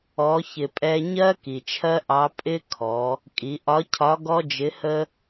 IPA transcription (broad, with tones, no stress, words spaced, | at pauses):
ɔ˩˧çɪ˩pʼɛ˧ ɲɜ˥ ki˩t͡ʃʰɜ˥ʔɑ˧˥ pʼɪ˥kʰɔ˩˧ | kʼi˩˧ʔɒ˧˥cʰɒ˧˥ ɡɔ˥d͡ʒɪ˧˥hə˥